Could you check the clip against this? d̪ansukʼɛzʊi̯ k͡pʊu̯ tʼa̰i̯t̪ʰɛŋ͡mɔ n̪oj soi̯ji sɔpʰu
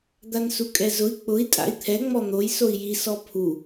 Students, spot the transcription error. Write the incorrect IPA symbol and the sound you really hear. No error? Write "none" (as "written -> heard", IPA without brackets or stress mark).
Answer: u̯ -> i̯